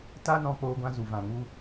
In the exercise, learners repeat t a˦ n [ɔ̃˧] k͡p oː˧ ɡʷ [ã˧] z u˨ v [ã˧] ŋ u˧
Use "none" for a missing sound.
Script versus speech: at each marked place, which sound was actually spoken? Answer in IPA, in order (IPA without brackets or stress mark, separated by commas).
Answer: ɔ̃˧, ã˧, ã˨